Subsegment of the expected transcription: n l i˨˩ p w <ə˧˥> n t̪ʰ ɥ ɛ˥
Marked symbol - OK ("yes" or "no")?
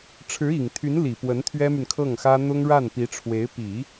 yes